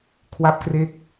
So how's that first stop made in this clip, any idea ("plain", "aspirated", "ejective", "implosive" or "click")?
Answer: aspirated